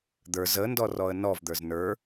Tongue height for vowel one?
mid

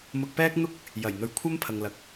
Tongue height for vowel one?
high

